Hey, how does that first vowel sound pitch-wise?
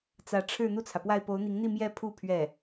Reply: rising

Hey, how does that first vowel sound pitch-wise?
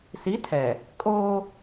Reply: rising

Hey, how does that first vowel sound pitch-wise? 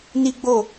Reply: high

